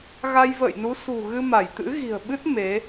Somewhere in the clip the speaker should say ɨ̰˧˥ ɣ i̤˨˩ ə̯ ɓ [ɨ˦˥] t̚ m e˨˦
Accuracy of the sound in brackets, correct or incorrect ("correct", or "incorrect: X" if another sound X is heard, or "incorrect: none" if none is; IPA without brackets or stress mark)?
correct